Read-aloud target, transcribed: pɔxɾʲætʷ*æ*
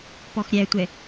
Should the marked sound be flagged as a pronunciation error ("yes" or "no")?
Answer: yes